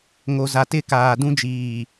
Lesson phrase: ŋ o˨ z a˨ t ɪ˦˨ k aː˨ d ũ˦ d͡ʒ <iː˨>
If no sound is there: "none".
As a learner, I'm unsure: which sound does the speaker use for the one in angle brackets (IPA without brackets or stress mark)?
iː˨